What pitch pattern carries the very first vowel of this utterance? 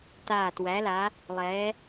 low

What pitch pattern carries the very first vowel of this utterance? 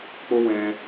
high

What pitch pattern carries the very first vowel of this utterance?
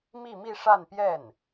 falling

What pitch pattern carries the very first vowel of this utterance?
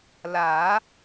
rising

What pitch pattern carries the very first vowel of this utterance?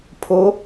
rising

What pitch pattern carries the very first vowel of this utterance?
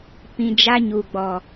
low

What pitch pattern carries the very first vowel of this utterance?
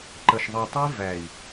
low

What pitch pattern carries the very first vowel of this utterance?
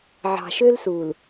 low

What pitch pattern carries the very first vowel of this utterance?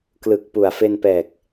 low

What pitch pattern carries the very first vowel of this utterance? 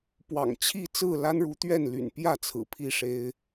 low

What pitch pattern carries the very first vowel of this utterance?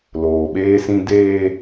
low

